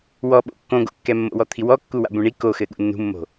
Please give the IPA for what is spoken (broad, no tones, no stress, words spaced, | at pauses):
wɔɓo̰ kːõɡo̰kːɛ mːo̰wɔt̪ʰiwɔ kːuwa̰bũɳi koxɘ ɠṵnːṳmːo̤